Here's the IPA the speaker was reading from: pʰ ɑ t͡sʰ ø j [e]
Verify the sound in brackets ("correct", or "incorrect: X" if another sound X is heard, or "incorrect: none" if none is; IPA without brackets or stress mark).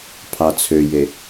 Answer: correct